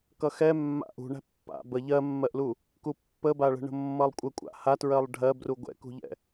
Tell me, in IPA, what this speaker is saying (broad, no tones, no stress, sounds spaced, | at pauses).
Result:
k ʌ x ɛ mː a̰ ʔ ṳ ɳ æ̤ pː a̰ b ə ʎ ɜ mː ɜ ʔ l u | k u pː ə b a ɭ ə̤ ɳ ə̤ mː ʌ lˠ kʷʼ ə kʷʼ a̰ h a t ɹ ɜ lˠ ɖʱ ɜ b r u ɡʷ ɛ̰ k ṳ ʎ ɛ̰